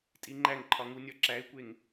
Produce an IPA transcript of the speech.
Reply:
tʼiŋ͡ǃæŋǃʰɒŋu nʲɒǁæɪ̯kʷeŋ

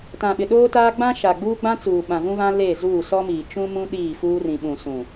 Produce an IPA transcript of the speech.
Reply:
tã˨ɓɪ˨ ɗoː˦taː˦ ɡ͡bã˦ ʃa˨ɡ͡buː˦ ɡ͡bã˦t͡suː˨ ɓã˨vũ˦βã˦ le˦˨zuː˦˨ sɔ˦miː˨ t͡ʃũ˦mũ˦ ɗiː˦˨fuː˦rĩ˨ ɓũ˨sũ˨

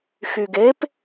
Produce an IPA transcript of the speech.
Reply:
xyɡep

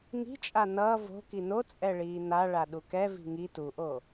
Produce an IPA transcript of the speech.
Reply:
ŋi̤t͡ʃʼa nʌː vo̤ kino t͡sʼɛɭiːna ɭaɗukɛ vi̤ŋi tuʔo

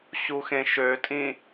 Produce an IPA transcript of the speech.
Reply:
ɕuxẽʃøtʼĩ

